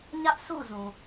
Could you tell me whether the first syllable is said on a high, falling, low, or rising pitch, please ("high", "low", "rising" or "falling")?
high